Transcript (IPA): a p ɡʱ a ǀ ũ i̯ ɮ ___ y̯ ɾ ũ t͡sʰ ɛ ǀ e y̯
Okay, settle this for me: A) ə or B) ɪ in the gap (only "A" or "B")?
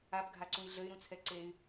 A